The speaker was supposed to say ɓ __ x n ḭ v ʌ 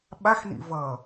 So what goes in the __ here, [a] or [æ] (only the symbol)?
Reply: a